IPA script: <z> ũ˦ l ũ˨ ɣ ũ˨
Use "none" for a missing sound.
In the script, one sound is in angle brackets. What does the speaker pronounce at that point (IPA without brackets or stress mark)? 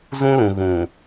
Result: z